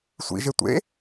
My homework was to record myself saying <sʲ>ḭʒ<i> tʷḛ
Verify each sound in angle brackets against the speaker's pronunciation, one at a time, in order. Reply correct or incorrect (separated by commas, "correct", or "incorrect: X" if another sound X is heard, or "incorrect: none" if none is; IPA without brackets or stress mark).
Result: incorrect: sʷ, incorrect: e